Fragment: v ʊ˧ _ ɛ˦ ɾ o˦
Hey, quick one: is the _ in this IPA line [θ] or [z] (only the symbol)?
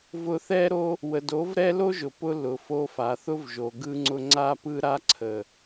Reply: θ